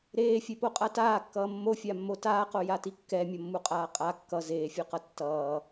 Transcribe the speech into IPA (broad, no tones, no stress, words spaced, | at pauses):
ɾeːfʲepoqʼa taːkːʌː mːofʲamːo taːqojati kːɛmʲʌmːuqʼaː qʼa kːʌ zeːfʲoqʌ tːʌː